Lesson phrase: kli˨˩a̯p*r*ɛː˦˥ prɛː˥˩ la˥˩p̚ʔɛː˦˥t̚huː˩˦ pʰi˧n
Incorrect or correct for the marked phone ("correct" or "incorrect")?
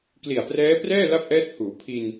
correct